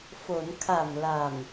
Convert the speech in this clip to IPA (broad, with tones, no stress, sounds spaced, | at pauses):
f o˩˦ n kʰ a˨˩ m l a˨˩ m